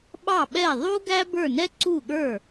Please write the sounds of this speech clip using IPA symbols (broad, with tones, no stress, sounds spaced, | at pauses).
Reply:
ɓ ɑ˥˩ ɓ ɛ˥˩ ðˤ u˥ ɡ æ˥ b ə˞˥˩ n ɛ˥ ǀ u˥˩ ɠ ə˞˥˩